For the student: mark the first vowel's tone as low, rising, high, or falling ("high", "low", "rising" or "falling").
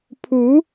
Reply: rising